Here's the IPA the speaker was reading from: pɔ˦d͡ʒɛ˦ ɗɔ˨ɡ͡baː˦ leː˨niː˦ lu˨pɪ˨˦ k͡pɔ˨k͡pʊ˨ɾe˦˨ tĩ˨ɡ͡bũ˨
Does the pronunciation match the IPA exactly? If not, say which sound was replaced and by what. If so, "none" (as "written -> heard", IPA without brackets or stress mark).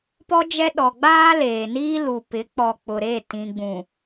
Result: none